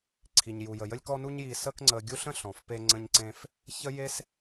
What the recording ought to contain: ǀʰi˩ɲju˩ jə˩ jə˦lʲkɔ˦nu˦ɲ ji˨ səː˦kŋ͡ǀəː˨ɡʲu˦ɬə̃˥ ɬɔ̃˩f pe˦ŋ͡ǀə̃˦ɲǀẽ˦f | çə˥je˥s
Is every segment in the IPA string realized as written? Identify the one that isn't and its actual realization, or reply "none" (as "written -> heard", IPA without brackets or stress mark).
none